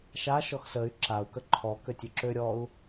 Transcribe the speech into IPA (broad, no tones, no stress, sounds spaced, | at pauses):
ʃ a ʃ ɔ x s ə y̯ ǁ a u̯ k ə ǃʰ ɔ k ø tʲ ø ǁ ø ɾʲ ɔ u̯